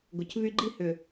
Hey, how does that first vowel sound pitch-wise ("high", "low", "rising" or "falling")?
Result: low